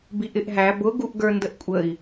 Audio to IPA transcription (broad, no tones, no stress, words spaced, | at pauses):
biʔɪʔɦæ bʊ ɡuʔɡə˞ndəʔkʷʼəi̯